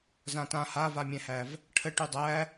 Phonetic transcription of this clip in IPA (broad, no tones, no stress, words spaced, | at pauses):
zãtã havamʲɛ̃hæv | ʈʰə ʈydˤæ